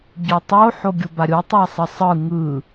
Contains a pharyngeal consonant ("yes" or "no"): yes